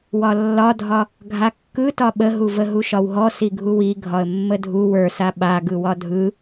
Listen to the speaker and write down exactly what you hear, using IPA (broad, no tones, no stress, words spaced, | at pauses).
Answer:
wɒlːɒdʱɒ | ɡʱakːɯ tɒɓəɦuvə ɦuʃɒwɦɔ siɡʱuwi ɡʱɒə̯mːədʱu wə˞sa ɓa ɡɯwɒdʱɯ